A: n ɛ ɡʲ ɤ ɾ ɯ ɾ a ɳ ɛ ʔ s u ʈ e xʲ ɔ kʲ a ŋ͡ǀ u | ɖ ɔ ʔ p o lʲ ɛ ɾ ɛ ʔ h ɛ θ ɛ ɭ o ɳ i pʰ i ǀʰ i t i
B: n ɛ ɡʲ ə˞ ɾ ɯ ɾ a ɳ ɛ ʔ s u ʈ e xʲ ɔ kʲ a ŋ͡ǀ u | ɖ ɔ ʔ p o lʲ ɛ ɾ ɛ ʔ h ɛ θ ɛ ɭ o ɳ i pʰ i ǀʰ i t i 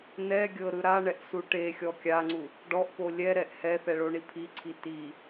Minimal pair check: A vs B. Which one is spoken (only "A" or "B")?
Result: A